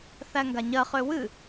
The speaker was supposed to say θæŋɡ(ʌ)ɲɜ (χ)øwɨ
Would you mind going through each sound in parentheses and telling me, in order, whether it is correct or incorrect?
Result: incorrect: a, correct

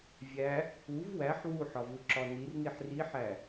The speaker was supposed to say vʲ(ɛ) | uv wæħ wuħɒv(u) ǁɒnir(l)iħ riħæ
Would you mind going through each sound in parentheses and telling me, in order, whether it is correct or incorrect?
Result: incorrect: æ, correct, incorrect: n

